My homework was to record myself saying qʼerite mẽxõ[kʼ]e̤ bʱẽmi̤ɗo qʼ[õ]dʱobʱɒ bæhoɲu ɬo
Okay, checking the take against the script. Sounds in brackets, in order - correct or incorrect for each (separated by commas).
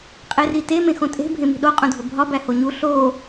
incorrect, correct